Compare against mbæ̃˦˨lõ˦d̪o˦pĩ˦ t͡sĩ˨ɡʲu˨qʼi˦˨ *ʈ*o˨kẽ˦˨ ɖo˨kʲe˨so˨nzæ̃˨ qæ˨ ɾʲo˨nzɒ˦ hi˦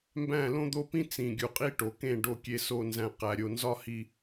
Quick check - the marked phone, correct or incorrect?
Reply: correct